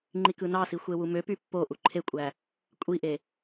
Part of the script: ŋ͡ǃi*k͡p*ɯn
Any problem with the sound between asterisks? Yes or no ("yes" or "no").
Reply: yes